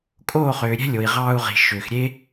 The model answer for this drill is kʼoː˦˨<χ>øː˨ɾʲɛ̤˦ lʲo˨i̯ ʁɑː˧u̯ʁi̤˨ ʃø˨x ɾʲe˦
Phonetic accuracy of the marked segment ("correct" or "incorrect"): correct